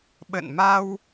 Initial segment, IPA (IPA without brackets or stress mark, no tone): ɓ